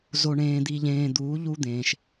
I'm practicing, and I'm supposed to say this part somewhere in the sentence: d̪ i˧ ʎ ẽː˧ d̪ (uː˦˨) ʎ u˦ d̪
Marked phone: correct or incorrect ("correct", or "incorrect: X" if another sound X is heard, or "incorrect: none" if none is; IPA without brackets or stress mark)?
incorrect: uː˨˦